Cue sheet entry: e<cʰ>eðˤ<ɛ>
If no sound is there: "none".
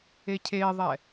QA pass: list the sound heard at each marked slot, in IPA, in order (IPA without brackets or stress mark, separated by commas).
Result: cʰ, ɛ